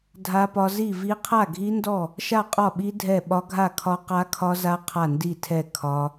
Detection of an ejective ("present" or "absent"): present